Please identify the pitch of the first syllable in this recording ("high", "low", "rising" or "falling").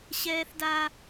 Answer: high